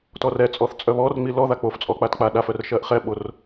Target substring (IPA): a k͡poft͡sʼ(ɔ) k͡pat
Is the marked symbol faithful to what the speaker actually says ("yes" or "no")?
yes